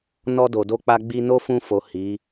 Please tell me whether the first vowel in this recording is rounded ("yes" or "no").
yes